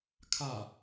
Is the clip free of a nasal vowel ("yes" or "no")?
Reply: yes